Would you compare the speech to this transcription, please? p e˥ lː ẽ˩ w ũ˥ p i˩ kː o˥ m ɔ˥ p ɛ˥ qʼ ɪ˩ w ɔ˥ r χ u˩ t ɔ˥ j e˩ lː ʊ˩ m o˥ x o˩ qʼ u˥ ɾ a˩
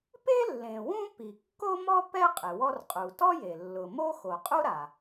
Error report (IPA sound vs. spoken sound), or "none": χ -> qʼ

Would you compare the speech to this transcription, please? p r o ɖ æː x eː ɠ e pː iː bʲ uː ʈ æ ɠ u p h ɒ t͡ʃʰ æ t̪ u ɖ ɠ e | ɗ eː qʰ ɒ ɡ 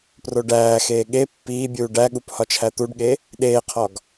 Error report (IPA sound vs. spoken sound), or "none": ʈ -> ɖ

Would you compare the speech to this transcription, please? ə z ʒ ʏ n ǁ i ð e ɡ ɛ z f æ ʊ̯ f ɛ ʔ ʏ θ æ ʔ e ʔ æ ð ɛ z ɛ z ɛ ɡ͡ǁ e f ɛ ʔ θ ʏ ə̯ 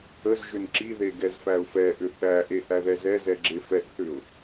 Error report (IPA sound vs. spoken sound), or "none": ə̯ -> ʊ̯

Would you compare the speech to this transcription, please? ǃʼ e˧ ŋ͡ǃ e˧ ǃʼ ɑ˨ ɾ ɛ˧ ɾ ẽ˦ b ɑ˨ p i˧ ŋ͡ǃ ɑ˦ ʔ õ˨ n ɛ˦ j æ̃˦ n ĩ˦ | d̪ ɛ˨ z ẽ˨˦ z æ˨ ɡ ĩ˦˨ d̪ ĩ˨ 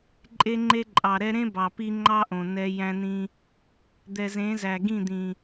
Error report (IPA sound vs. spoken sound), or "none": none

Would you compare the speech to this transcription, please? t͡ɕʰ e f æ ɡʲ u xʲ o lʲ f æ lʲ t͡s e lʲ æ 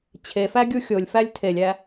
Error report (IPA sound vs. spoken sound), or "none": t͡s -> tʰ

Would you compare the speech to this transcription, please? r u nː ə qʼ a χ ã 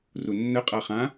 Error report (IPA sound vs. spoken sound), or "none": none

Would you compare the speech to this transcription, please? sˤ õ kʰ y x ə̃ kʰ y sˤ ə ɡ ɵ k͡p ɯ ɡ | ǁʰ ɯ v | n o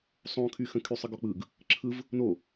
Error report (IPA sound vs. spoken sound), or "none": ɵ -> ɔ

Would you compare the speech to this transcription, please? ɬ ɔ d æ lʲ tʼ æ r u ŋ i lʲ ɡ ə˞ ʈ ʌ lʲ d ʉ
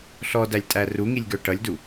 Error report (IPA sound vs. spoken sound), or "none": ʉ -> u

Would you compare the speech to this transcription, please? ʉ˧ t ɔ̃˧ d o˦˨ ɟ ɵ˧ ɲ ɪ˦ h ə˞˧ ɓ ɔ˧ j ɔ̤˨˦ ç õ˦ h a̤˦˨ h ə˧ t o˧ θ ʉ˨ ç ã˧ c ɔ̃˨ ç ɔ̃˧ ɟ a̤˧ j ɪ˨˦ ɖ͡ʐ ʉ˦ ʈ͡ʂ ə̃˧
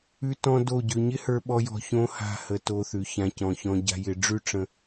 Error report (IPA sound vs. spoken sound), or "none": ɔ̤˨˦ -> ɔ̤˧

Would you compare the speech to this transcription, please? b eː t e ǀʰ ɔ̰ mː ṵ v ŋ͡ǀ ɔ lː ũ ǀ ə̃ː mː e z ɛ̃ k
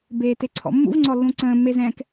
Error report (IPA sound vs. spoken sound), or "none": none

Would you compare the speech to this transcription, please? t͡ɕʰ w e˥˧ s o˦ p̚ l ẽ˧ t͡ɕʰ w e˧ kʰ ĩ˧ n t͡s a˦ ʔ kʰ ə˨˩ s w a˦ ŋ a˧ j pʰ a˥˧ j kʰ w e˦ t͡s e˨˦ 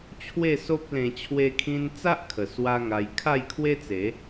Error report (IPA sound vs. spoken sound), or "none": pʰ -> kʰ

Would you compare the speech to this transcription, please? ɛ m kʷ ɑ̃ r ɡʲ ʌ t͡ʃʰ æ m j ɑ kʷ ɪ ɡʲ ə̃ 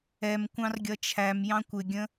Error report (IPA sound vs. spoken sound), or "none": ɑ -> ɑ̃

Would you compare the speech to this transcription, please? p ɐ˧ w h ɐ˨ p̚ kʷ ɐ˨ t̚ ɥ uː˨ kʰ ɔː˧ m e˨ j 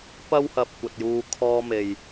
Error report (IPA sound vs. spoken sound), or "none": ɥ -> j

